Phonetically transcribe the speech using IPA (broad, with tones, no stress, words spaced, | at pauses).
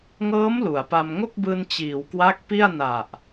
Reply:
ŋɤː˦˥m lu˩˦a̯pa˧m ŋo˥˩k̚bɯː˧n t͡ɕiː˩˦wkwa˦˥k̚ pi˥˩a̯na˨˩ʔ